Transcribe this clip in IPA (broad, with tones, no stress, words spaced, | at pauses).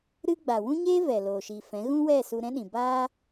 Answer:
ɾɨ˧ ɡ͡ba˨wũ˦ɲeː˦ vɛ˨loː˨ʃi˨fɛ̃˨˦ ɣũ˦wɛ˦˨ su˧ɾɛ̃˦ɗĩ˨ ba˧